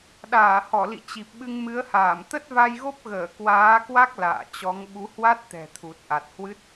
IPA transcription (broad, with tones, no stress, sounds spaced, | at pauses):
ɗ aː˧˩ h ɔ˧˩ l ḭ˧˨ t͡ɕ i˨˩ p̚ ɓ ɨ˧ ŋ m ɨ˨˦ ə̯ h aː˧˩ m t̪ ə˦˥ t̚ v a˧ j ɣ o˦˥ p̚ ɣ əː˧˩ k w aː˨˦ k w a˦˥ k̚ l a̰ː˧˨ t͡ɕ ɔ˨˦ ŋ ɓ u˨˦ h w a˦˥ t̚ t̪ ɛ̤˨˩ t̪ʰ u˨˩ t̚ ʔ a˨˩ t̚ h w ɨ˦˥ t̚